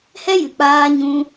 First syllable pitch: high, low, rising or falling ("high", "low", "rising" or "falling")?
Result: high